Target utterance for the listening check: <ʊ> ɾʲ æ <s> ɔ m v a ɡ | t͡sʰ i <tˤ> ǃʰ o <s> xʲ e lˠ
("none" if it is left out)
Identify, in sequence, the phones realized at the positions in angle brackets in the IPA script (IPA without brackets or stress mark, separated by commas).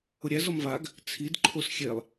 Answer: ʊ, z, d, s